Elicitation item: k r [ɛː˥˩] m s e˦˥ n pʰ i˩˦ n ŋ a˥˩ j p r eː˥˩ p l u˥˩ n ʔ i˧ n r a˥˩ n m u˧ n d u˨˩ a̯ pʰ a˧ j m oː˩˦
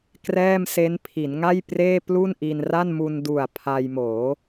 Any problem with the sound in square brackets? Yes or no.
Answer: no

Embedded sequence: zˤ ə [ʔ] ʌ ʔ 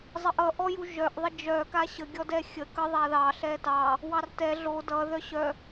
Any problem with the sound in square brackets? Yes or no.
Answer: no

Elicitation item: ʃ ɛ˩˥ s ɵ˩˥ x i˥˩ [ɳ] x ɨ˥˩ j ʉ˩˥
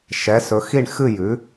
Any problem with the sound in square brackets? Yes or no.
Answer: no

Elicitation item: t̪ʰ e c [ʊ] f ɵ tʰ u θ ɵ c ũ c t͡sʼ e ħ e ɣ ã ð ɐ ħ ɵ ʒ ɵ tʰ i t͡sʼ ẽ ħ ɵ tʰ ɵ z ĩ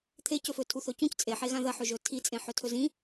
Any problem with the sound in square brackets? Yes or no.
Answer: yes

